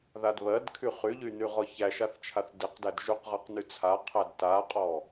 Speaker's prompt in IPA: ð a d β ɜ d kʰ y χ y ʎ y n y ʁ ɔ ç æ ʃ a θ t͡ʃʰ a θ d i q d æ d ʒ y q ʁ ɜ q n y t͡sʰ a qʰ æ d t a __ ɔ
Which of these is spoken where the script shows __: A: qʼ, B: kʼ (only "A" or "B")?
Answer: A